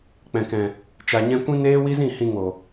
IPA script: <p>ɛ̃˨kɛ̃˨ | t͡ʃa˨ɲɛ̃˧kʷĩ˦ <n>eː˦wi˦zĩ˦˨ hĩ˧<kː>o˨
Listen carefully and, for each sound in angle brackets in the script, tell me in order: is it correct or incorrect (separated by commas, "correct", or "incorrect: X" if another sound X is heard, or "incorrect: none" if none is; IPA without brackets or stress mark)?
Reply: incorrect: k͡p, correct, incorrect: ŋ